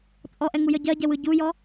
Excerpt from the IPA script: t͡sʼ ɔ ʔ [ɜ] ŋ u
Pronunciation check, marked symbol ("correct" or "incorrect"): incorrect